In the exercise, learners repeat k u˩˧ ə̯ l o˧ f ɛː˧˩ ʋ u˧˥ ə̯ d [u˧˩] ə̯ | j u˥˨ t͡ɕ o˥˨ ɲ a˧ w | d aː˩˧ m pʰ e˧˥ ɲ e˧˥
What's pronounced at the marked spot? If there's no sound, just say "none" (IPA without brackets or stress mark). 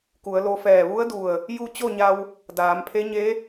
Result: u˧˩